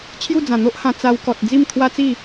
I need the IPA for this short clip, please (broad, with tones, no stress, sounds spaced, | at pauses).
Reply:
t͡ɕʰ j u˥˧ d͡z ã˨˩ n̪ o˦ ʔ h ã˧ t͡s a˧ w k ɔ˨ t̚ d͡z i˥˧ m t̪ʰ w a˦ t͡s i˥˧